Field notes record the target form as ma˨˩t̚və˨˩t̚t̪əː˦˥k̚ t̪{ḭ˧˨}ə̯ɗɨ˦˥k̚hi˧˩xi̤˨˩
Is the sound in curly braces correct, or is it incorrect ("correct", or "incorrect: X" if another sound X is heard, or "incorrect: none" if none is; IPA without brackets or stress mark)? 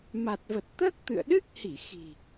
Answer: incorrect: ɨ̰˧˨